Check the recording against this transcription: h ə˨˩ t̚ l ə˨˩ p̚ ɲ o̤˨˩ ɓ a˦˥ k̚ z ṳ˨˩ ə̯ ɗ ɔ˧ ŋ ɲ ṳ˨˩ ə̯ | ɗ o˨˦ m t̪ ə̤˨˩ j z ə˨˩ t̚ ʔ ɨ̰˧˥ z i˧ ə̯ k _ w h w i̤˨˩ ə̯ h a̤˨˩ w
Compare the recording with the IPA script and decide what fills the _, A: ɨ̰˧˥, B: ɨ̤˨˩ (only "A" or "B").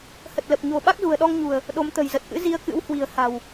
A